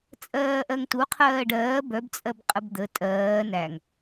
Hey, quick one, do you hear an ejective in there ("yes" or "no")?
yes